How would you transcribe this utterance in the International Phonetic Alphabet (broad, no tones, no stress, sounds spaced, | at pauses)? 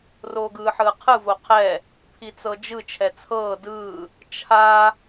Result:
r oː ɡ ɯː ħ ɯː qʰ ɯ v o qʰ ɛ | pʰ i t͡s ɤ d͡ʒ ɯ t͡ʃʰ ɛ t͡sʰ ɤː d ɯː | t͡ʃʰ a